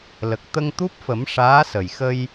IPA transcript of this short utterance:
l ə˨˩ k̚ t̪ ə˧ ŋ t̪ u˦˥ p̚ f ə˨˩˦ m ʂ aː˧˥ s ə˨˩ j x ə˧ j

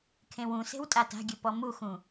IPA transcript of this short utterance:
kʰ ẽ w ũ s e̤ w tʼ a t a̤ ɡʲ ɨ p ɔ m u x ũ

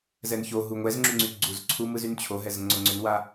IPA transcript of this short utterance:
z ɛ n ç o ɦ u ŋʷ ɛ z ŋ͡ǁ y ŋ͡ǀ y ɡ͡ǀ u z ǀʰ u m ɯ z y n t͡ɕʰ o ɦ ɛ z ŋ͡ǀ o ŋ͡ǀ ʏ n w a

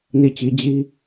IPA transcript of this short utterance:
n i˦˨ t͡ɕ i˦ d͡ʑ i˦

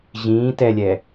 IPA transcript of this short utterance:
ʑ ĩː t ɛ lʲ ɛ

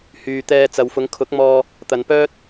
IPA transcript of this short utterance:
h yː˨ t̪ ɛː˧ t͡s ɐ˨ w f ʊ˨˧ ŋ kʰ ʊ˨˥ k̚ m ɔː˧ | t̪ ɐ˨ n p œː˥ t̚

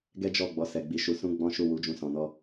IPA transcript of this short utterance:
ɡ ɛ˦ d͡ʒ ɔ˦˨ ɡ͡b ɔ˨˦ s ɛ˧ ɡ͡b i˧ ʃ u˧ s ũ˦ ɡ͡b ɔ̃˦ ʃ u˦˨ w u˨˦ d͡ʒ ũ˧ s ɔ̃˨ n ɔ˧

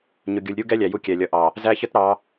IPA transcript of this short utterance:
ɲ ʊ˨ ɡʲ u˨ lʲ ɾʲ u˦ ɡ ɛ˦ lʲ æ˨ j u˦ kʲ ɛ˨ lʲ ʌ˨˦ ʔ ɑ˨ | z æ˦ ç ə˦ t ɾ ɑ˨˦

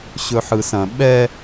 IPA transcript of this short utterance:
ɕ ɵ ħ ɯ s ɐ̃ ɓ ɛ

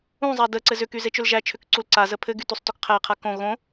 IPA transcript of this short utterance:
ũ zˤ a d ə ǀ ɘ z ʏ k y z e t͡ʃ ʏ l ʒ æ t͡ʃʰ ʏ k ǀ u l ǀ a z ə pʰ ɘ ɡ y t u sˤ t o k qʰ æ qʰ a k õ ɣ õ

